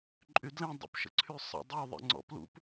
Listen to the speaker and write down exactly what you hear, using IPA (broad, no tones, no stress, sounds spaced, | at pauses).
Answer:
ǃʼ y d l ẽ dˤ ə̰ p ʃ ə̰ ǀʰ y sˤ ə̰ dˤ y ðˤ ḭ ŋ͡ǀ ɔ̰ p l ṵ p